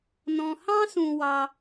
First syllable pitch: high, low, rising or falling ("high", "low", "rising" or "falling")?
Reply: low